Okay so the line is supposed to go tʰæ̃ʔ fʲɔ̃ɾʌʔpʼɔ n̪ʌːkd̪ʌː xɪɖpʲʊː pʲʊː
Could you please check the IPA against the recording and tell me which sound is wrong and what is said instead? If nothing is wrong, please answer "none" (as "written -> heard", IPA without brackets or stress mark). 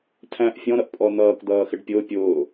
none